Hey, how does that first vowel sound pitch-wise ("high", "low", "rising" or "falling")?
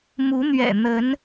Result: rising